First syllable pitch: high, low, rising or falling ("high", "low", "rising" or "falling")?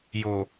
low